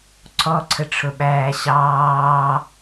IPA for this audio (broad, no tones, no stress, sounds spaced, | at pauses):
ǀʰ ɔ ǀʰ ə ʈ͡ʂʰ ʊ ɓ æː ɕ ɑː